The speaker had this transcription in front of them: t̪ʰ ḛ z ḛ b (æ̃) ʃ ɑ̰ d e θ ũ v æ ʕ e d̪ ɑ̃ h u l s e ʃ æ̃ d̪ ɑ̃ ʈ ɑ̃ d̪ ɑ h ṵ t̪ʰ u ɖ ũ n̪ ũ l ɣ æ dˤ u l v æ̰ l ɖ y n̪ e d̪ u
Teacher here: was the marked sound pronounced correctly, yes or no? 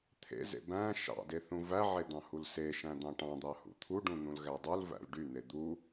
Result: yes